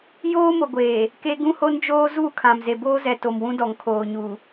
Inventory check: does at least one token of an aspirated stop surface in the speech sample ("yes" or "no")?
yes